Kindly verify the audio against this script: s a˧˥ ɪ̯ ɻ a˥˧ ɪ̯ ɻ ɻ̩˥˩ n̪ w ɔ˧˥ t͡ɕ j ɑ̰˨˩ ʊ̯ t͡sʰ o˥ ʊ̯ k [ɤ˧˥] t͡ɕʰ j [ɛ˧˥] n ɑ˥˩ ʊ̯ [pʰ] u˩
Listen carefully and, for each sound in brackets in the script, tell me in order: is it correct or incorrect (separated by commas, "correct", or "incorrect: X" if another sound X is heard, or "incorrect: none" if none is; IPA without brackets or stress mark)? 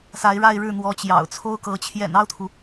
correct, incorrect: ɛ̰˨˩, incorrect: t̪ʰ